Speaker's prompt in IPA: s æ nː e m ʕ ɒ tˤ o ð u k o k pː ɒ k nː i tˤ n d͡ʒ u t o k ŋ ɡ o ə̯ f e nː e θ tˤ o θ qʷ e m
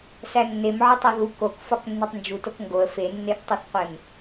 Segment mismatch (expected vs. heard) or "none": pː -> f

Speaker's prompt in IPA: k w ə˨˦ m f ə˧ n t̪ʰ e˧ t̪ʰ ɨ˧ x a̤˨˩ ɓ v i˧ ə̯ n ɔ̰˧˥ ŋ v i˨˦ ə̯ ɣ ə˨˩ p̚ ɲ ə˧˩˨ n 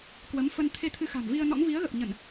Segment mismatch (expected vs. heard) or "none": ɓ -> m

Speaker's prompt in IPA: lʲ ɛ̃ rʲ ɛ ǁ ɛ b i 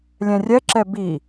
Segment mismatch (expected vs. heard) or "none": none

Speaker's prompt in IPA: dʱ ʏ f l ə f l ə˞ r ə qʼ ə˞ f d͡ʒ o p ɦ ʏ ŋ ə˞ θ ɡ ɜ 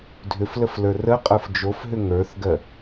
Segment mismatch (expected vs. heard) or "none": p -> f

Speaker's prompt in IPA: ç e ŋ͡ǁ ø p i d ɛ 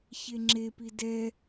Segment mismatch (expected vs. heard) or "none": ø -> e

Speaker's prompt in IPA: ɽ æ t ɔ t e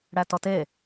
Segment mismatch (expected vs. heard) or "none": none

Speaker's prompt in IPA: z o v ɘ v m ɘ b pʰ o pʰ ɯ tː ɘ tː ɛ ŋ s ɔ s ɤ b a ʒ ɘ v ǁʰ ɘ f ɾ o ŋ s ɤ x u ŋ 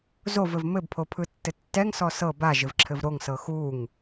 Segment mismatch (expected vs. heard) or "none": f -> v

